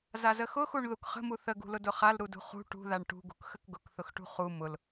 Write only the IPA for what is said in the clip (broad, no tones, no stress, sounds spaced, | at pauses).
z a z ə x ʊ x u ɳ ð u k χ ə̤ m u θ ə ɡ ṳ l ʊ d ʊ χ a l ɾ u d ṳ χ ṳ ʈ ṳ ð a ɳ ʈ ṳ ɡ ṳ k x ə k ɡ ʊ k θ ʊ x ʈ ṳ χ u m ʊ l